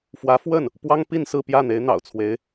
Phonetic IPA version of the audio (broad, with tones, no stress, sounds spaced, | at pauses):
f w ä˧˥ f w ə˥˩ n | p w ɑ˥ ŋ p i˥˧ n s ɹ̩˥˧ p j ä˥˩ n̪ e˧˥ ɪ̯ n̪ ɑ̰˨˩ ʊ̯ t͡sʰ w e˧˥ ɪ̯